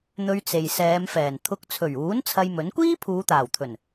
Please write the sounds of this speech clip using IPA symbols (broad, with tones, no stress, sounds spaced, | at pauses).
n̪ ɵ˧ ɥ t͡s e˨ j s ɛː˨˧ m f ɛː˨˩ n t̪ʰ ʊ˧ k̚ t͡sʰ ɵ˨˩ ɥ uː˨˥ n t͡sʰ ɐ˧ j m ɵ˨˥ n kʷ iː˥ pʰ uː˨˧ t̪ aː˨˩ w t̪ʰ ɵ˨˩ n